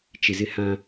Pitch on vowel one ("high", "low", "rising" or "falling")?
low